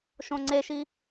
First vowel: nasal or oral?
nasal